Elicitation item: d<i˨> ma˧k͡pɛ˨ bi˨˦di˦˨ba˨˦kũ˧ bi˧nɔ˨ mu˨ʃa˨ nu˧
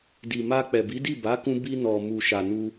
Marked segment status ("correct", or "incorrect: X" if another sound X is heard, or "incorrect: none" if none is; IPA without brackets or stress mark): correct